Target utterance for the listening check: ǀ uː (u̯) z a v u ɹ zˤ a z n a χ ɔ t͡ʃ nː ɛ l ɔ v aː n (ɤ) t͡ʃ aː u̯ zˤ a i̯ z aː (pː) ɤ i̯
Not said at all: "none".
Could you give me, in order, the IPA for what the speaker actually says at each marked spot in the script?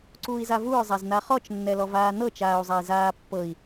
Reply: i̯, ɤ, pː

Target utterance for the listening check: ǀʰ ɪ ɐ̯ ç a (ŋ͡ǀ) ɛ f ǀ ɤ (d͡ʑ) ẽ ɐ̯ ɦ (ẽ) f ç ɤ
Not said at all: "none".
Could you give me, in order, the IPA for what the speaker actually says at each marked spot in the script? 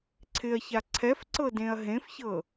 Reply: ǀʰ, d, ẽ

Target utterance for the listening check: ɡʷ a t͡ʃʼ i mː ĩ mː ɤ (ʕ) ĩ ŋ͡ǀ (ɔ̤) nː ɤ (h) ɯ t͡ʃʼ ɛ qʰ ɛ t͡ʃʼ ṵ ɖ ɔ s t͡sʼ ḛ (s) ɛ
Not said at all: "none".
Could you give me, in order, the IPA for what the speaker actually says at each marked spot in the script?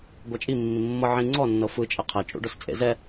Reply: ʕ, ɔ, f, z

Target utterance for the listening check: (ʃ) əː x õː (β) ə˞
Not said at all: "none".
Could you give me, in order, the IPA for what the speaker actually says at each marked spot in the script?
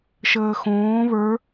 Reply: ʃ, β

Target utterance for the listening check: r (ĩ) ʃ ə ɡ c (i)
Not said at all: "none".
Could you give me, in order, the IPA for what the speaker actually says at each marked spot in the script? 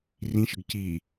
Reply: ĩ, i

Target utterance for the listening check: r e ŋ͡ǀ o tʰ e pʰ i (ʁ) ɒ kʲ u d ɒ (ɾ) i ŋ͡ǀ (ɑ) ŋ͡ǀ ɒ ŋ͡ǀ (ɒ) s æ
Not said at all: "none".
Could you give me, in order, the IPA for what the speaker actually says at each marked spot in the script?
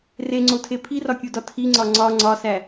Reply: r, tʰ, ɒ, ɒ

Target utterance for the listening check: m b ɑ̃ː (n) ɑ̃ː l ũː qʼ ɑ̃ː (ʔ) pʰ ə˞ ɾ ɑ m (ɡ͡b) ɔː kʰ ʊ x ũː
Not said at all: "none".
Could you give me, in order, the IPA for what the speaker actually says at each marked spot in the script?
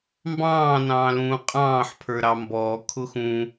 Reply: n, ħ, b

